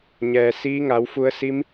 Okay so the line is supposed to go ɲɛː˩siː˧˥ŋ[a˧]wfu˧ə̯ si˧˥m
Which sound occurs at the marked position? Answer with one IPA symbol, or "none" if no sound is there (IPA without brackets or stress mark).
a˩˧